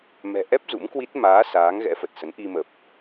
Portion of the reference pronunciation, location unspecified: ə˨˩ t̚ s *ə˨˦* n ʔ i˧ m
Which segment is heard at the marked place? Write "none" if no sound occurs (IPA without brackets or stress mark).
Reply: ə˨˦